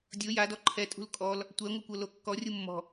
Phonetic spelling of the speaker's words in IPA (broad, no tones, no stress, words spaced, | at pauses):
dʲo jadɔ ǃʰɛtʼṳl kʼɔl | tʷɛŋʷɯkʷɤlo kːɔrʲu mːɔ̤